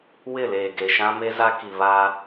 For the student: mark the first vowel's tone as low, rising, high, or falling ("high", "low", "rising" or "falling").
falling